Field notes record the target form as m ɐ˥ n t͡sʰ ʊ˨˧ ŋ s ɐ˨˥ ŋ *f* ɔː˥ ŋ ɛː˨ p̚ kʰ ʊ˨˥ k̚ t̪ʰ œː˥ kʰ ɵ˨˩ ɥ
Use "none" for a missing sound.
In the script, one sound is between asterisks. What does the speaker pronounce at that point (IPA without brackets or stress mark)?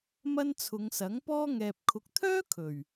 p